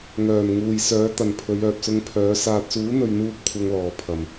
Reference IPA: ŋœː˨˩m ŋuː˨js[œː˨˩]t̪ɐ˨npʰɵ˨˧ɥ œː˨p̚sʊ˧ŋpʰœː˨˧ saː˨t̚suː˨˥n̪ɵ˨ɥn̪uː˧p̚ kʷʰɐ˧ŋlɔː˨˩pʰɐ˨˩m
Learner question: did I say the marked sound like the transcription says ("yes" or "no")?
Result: no